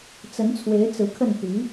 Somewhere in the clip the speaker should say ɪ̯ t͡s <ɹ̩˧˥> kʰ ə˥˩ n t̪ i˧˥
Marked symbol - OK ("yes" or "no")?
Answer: yes